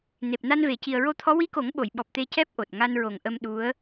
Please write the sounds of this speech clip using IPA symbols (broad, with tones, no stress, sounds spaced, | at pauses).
n e˨˩ p̚ n a˧ n v e˨˩ c i˨˩ ə̯ ɹ o˧ t̪ʰ ɔ˧˥ w i˧˥ k o˨˩˦ ŋ ɓ o˨˩˨ j ɓ ɔ˨˩ p̚ t̪ e˧ c ɛ˦˥ p̚ ʔ o˨˩ t̚ ŋ a˧ n ɹ o˨˩ ŋ ʔ ə˧ m ɗ u˧˥ ə̯